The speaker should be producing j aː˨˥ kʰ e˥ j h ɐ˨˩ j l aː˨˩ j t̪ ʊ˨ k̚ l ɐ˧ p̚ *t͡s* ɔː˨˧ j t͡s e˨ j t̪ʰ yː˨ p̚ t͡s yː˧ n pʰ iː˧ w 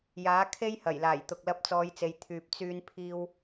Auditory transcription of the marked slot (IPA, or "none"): t͡s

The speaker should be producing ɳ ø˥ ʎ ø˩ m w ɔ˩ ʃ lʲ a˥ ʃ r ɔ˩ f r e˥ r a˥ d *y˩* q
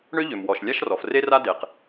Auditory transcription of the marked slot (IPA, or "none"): e˩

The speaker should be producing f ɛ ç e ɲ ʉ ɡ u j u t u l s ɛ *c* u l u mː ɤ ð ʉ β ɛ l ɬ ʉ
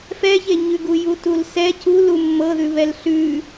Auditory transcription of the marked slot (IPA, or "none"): c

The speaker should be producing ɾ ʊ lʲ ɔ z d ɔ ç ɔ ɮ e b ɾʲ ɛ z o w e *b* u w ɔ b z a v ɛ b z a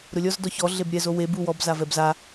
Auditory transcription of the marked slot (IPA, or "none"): b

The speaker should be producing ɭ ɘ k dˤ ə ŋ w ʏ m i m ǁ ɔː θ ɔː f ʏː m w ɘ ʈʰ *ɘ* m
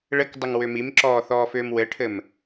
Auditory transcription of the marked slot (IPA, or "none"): ɘ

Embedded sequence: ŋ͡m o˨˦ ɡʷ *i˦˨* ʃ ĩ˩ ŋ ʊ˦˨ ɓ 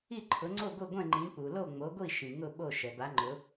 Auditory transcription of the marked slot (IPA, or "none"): i˦˨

